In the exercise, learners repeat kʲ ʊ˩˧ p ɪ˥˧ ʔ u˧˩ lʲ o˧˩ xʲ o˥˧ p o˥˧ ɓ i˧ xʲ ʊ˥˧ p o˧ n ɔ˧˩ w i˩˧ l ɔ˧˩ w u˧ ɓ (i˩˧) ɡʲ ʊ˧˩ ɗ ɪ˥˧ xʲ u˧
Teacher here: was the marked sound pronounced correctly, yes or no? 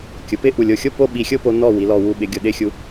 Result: no